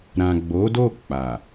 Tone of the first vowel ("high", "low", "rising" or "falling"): low